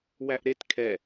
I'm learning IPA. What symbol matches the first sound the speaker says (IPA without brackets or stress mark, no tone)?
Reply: w